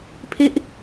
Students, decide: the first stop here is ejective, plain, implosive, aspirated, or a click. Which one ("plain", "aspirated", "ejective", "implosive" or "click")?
aspirated